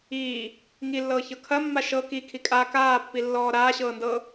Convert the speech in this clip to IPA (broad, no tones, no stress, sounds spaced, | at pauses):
iː | ŋ i lː ɤː ç ɤ kʰ ɐ mː a ʃ ɤ k i kʰ i kʼ a k aː pː i lː ɔː ɾ aː ɕ ɤː n d ɤ